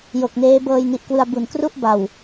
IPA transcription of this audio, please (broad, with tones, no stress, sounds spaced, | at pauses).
j o˨˩ k̚ n eː˦˥ b ɤː˧ j n i˨˩ ʔ k w ɯ˧ a̯ b u˨˩ n k r u˥˩ ʔ b a˨˩ w